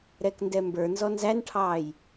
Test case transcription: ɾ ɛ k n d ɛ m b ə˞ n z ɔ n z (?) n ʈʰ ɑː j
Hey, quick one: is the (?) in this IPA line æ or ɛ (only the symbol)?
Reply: æ